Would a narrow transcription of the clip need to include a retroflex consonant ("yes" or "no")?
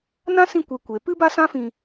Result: no